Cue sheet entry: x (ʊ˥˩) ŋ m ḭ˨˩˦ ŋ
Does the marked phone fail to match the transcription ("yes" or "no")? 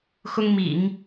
yes